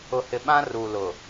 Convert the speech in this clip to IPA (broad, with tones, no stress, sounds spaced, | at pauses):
ʊ˨ h ɪ˨ ɓ ã˦ r u˨ l ʊ˨